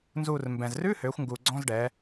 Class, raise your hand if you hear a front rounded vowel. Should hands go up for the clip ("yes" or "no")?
yes